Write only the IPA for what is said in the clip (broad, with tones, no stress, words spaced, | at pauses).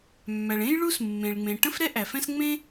mːæ˩ɭẽ˥j ɭu˥s mːẽ˩ɭŋ͡mẽ˩ ʈə̃˥fɾɛ˥ ʔæ˩fɛ̃˥s ŋ͡mẽ˥